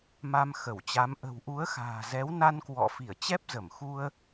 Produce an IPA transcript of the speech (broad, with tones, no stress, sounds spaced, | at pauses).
m a˧ m x ə˧˩ w t͡ɕ a˨˦ m ʔ ə̤˨˩ w ʔ u˨˦ ə̯ x a̤ː˨˩ z ɛ˨˦ w n a˧ n k w ɔ̰˧˨ f i˧˩ ə̯ t͡ɕ ɛ˦˥ p̚ z ə˧˩ m x u˧ ə̯